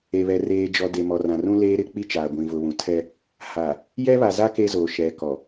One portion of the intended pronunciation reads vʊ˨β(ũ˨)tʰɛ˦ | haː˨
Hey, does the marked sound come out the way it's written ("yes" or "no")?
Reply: yes